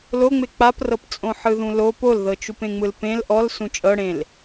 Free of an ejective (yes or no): no